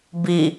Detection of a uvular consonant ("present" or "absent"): absent